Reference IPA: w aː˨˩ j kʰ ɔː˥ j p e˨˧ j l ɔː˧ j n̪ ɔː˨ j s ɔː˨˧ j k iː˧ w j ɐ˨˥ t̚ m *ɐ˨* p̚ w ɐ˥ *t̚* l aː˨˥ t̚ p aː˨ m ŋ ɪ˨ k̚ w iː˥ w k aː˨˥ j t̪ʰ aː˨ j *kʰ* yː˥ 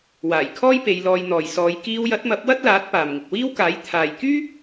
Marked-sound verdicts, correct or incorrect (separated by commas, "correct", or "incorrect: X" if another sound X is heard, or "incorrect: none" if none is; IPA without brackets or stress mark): incorrect: ɐ˨˥, correct, incorrect: k